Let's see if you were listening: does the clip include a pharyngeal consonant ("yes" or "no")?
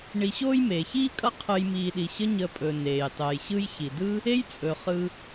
no